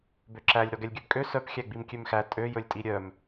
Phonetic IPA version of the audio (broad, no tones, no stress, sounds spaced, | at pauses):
b ø ǁ æ lʲ ɾ ɔ ɡ ɛ lʲ ɡʲ œ b kʼ ø s œ p xʲ æ ɡ͡b i m kʲ ø m x æ tʼ ø j ɵ lʲ tʼ i ɾʲ œ m